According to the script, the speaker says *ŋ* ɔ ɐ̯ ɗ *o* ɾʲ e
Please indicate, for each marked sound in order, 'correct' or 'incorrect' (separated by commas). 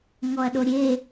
correct, correct